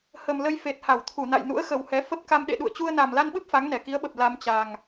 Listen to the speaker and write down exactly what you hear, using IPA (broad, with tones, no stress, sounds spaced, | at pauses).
h ə˨˩ m l ə˧ j f e˨˩ t̚ h a˧˩ w t̪ʰ u˧˩ n a̰˧˨ j n ṵ˧˥ ə̯ x ə˨˩ w h ɛ˨˦ f ə˦˥ p̚ k a˧ m ɗ ḛ˧˨ ɗ ṵ˧˨ ə̯ t͡ɕ u˧ ə̯ n a˨˩ m l a˧ n ɓ ɨ˦˥ p̚ f a˨˦ ŋ n ɛ˧˩ k i˨˦ ə̯ ɓ ə˨˩ p̚ l a˧ m t͡ɕ a˨˩ ŋ